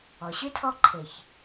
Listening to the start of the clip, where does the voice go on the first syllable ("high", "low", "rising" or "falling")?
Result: low